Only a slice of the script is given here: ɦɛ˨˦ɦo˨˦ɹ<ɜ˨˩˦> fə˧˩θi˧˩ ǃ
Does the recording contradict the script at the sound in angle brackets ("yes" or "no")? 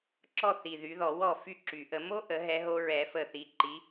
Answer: yes